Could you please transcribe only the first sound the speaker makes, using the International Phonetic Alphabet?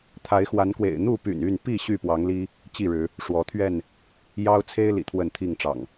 t̪ʰ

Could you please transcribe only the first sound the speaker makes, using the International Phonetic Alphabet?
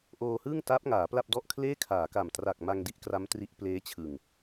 ʔ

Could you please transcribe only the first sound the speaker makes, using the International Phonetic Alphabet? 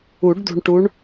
u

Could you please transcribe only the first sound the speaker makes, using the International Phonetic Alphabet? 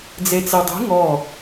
d͡z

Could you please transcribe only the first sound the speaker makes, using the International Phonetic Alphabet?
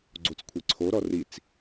ɡ͡ǀ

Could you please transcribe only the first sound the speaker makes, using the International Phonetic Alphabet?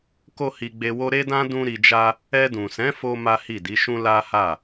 k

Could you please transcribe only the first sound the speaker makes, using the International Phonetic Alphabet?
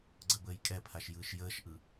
ɡ͡ǀ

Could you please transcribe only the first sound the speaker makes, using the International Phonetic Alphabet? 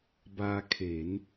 b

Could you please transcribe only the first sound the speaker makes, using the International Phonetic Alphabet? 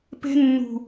p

